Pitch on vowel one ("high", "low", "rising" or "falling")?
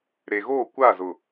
low